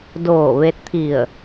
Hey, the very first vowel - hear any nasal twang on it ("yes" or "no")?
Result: no